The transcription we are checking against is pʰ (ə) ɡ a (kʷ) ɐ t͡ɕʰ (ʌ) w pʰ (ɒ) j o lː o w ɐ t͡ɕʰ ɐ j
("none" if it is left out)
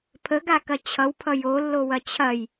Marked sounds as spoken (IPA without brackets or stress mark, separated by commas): ə, k, ʌ, ʌ